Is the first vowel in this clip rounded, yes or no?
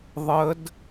no